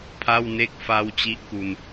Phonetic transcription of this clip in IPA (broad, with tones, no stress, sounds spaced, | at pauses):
pʰ a˥˩ w n e˥˩ k̚ f a˥˩ w t͡ɕ i˥˩ ʔ k u˧ n